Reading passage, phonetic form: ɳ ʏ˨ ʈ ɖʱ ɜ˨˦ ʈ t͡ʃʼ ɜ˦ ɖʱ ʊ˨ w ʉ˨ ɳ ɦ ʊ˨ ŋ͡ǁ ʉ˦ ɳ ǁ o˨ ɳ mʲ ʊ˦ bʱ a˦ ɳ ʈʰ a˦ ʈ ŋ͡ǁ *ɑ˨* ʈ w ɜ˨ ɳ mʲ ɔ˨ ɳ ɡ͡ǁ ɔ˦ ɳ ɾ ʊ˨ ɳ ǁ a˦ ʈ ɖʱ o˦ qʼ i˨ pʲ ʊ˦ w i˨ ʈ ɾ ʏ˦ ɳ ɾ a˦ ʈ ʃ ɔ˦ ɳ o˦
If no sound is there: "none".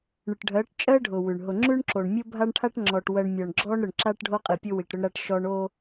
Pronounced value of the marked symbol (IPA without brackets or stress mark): ɔ˨